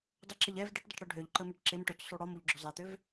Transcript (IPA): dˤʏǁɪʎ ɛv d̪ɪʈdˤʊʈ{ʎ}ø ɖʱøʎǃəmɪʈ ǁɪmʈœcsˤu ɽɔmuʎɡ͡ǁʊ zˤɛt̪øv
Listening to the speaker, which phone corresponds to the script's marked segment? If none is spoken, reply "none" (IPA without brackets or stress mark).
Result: ɽ